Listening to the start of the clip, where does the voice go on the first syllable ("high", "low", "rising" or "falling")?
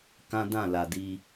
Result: high